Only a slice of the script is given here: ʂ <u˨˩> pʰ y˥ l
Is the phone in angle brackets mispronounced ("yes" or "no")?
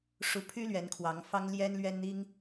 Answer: yes